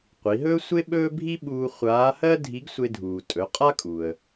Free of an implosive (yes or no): no